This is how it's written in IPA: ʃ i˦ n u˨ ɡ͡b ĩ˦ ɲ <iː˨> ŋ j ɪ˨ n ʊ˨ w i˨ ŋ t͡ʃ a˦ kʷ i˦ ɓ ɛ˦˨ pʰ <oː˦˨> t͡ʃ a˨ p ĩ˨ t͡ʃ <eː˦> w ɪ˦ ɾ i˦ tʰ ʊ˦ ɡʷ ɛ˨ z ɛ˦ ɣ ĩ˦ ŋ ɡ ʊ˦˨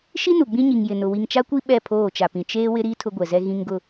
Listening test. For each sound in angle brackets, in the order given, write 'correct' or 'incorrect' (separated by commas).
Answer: incorrect, correct, correct